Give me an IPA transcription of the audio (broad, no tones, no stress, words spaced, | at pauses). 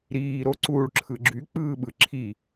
ɾiːɾoǀuːɭ ǁʰɯɡ͡ǁy k͡pɯːɓɯ ǁʰi